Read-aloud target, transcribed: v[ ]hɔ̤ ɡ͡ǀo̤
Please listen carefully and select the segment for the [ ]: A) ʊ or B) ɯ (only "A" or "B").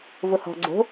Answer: A